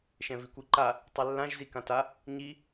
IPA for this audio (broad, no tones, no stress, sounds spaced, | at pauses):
ʃ ɛ̃ v i kʷ i ǃ a | tˤ i lː ã ʒ z i k ã t a | ɲ i